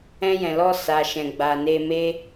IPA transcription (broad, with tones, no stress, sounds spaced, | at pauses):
ɛ̃˧ j ɛ̃˨ l ɔ˧ s a˨ ʃ ɛ̃˨ ɡ͡b a˨ n e˧ m e˦